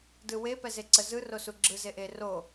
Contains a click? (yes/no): yes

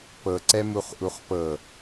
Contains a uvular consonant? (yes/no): yes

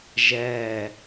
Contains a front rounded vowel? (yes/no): no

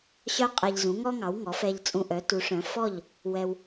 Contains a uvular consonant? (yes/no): yes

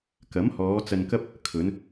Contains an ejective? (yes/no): no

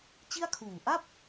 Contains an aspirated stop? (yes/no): yes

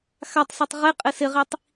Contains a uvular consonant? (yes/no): yes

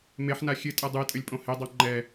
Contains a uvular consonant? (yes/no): no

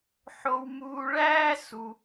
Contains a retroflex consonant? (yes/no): yes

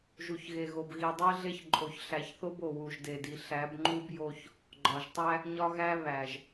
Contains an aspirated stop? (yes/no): no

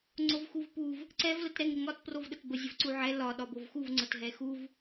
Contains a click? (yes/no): yes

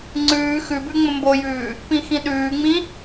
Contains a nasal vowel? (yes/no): yes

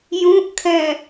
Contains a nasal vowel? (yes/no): yes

